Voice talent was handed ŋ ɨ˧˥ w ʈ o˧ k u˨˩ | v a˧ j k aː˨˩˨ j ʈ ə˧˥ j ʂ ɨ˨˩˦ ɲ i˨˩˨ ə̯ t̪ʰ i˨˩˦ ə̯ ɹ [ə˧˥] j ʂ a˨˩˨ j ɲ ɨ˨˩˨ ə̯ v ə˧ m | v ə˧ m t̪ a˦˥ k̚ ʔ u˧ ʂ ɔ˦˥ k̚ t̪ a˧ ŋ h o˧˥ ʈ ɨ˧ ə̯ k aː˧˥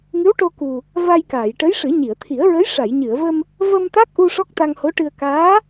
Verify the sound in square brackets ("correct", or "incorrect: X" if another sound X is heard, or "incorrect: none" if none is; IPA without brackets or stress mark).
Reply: correct